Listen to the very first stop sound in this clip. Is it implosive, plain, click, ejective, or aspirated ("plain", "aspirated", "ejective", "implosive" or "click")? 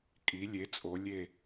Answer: ejective